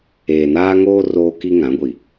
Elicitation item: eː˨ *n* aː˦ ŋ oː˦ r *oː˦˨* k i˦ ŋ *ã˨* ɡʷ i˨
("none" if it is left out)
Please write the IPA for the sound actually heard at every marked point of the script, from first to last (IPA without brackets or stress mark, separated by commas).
n, oː˦, ã˨˦